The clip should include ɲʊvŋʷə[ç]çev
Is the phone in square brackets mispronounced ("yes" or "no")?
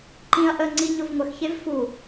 yes